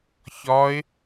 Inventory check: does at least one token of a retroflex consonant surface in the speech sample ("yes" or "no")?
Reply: no